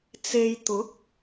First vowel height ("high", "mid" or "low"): mid